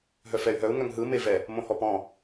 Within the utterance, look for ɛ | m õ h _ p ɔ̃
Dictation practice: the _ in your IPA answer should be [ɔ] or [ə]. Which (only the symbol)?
ɔ